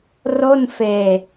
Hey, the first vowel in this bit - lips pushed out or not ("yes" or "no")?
yes